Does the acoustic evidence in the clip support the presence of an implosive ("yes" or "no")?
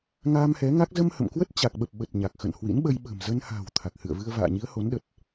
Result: yes